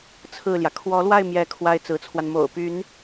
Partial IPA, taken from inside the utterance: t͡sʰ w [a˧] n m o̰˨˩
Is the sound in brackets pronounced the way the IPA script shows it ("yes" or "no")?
yes